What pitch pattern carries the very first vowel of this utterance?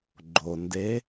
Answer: low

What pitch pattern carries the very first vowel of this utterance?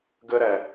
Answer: high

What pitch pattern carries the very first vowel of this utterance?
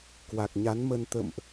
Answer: low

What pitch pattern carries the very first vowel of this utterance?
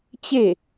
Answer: falling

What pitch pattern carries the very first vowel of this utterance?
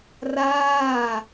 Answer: falling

